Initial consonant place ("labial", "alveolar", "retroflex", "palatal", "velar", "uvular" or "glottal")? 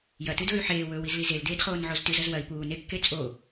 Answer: palatal